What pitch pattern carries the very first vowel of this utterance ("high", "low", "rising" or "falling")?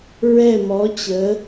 falling